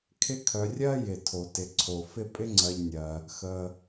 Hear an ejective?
yes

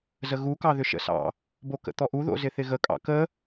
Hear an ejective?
yes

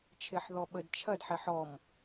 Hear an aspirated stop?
yes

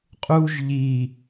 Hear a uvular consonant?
yes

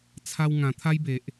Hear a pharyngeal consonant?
no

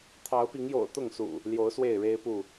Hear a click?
no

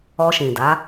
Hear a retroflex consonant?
no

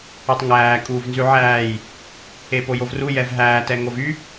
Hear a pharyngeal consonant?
yes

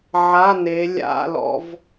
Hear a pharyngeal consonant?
yes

